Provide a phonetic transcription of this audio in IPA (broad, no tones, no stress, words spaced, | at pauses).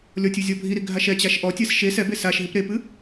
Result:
lʲɔtʲɨ zʲɔbʱiɾi ɡʱaʃɛt͡ɕaʃ ʔɔtʲɛs ʃe sɛbes aʃ ɦipɾepɨ